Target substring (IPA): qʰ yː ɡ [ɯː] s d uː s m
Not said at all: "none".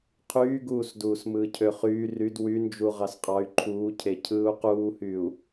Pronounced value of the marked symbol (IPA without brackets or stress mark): uː